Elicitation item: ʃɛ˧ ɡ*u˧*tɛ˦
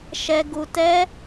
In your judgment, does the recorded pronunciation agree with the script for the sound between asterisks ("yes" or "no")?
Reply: yes